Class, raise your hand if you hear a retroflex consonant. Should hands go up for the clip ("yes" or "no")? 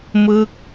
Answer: no